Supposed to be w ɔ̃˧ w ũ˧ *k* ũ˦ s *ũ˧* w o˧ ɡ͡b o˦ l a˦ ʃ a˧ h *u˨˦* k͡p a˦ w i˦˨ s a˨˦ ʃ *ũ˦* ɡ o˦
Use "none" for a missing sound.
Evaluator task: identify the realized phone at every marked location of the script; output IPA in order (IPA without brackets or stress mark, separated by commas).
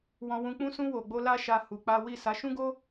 k͡p, ũ˦, u˧, ũ˦